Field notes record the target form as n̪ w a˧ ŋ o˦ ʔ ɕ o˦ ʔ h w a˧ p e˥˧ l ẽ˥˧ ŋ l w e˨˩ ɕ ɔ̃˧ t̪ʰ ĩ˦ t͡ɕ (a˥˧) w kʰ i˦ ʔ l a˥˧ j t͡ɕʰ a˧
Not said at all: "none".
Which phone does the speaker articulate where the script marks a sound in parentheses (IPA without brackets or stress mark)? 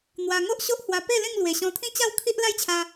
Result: a˥˧